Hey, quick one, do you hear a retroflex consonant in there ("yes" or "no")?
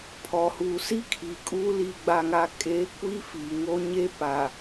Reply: no